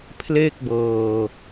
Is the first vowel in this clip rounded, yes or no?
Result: no